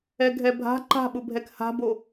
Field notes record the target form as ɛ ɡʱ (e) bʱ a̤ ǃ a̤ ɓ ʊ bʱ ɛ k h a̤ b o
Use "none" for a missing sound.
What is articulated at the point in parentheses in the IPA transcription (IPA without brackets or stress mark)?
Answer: ɛ